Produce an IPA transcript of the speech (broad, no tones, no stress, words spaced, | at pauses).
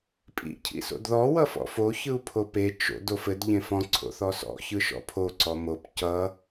pʼḭ cʰḭso̰dðɔ wʌfɔ̰fo çɯu̯pʰope t͡ʃo̰d ofɘd ʎẽfɔ̃ ǀʰo̰θɔsɔ̰ çɯʃɔ̰pʰo ǀɔmop cʌ